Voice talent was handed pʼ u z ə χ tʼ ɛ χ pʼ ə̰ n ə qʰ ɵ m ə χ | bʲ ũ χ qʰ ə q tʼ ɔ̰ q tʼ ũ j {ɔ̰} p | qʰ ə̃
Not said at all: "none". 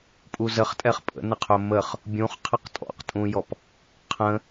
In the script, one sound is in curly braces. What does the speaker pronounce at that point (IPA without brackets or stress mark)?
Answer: ɔ